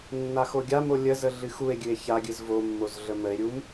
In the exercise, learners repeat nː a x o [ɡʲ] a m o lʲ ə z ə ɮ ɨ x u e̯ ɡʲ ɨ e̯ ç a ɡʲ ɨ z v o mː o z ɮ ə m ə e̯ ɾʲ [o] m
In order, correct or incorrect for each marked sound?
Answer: correct, incorrect: u

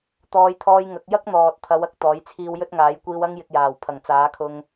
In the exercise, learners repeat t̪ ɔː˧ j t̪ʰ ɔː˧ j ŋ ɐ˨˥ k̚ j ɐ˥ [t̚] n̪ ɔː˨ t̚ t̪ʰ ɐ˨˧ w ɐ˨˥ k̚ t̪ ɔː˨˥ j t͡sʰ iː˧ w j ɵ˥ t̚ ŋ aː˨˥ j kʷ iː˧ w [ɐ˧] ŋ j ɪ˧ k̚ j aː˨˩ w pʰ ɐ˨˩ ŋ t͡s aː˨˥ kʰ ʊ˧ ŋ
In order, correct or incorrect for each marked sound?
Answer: incorrect: k̚, incorrect: ɐ˥

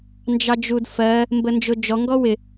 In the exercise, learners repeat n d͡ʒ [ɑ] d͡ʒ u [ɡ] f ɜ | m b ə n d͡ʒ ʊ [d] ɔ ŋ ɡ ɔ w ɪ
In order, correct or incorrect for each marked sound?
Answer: correct, incorrect: d, incorrect: d͡ʒ

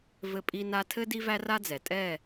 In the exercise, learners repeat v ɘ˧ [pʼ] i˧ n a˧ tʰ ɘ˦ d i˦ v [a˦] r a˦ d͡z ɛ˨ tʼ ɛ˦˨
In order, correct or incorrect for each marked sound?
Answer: correct, incorrect: æ˦

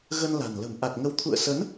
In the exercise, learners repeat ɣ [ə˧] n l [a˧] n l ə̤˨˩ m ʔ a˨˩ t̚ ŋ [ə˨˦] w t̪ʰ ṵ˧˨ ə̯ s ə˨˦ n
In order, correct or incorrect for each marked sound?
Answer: correct, incorrect: a̤˨˩, correct

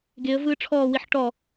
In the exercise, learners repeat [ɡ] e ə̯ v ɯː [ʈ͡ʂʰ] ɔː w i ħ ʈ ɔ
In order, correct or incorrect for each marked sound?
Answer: correct, correct

